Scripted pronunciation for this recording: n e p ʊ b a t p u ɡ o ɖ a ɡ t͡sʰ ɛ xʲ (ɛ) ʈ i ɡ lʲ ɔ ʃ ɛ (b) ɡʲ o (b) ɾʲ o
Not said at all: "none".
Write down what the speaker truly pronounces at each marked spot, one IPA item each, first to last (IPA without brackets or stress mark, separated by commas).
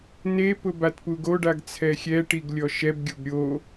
ɛ, b, b